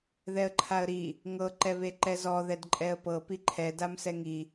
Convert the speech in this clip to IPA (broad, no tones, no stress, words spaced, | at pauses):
ðɛə̯ǃʰaə̯ɾi | ŋɤ ǃɛβeǃɛzɔ ðɛdǃʼɛə̯pɤ piǃʰɛ damsɛŋi